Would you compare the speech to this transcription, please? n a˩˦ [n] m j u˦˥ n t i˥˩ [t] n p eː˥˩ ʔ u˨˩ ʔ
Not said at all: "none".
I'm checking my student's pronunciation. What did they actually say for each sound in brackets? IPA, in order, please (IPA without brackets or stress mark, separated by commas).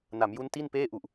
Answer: none, none